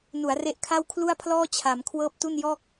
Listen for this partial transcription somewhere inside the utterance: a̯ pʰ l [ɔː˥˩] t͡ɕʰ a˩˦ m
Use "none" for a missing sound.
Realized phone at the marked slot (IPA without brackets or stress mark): ɔː˥˩